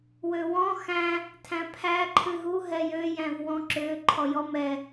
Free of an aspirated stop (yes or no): no